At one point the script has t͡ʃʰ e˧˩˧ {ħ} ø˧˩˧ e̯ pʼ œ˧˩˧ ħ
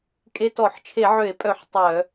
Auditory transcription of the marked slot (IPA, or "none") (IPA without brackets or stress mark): ʕ